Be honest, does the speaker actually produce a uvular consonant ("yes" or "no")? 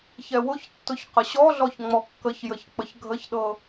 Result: yes